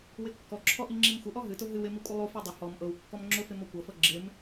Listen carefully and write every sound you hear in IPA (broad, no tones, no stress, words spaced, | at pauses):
wɪkːɔǁʰɔ ʔiŋ͡ǁimxʷɪʔɔ ɦɨtʊ ɦɨw ɪmi kʷʼɪlˠufi dˤɪ hɔm ʔɤwkːɔm ŋ͡ǁʊfɪ mɔkʷɤfɤ ɡ͡ǁɪm